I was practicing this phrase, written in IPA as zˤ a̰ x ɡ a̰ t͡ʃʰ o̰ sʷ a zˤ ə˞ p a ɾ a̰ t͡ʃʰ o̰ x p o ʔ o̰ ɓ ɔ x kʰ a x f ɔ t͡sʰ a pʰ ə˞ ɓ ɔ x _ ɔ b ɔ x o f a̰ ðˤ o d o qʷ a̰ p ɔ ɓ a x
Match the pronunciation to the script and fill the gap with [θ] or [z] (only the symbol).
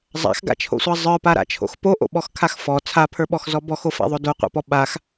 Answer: z